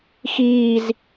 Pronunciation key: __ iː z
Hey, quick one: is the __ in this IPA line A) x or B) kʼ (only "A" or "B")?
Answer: A